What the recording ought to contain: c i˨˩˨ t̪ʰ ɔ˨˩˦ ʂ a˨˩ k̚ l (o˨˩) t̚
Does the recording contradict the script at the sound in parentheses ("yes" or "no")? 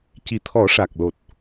no